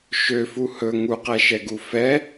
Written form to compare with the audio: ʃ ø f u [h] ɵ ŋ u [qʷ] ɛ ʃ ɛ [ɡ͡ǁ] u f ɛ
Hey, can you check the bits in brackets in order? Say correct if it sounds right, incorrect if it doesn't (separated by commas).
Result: correct, incorrect, incorrect